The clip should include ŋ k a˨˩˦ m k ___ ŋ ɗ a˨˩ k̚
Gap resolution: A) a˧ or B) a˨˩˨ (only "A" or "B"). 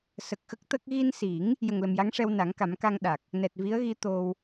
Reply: A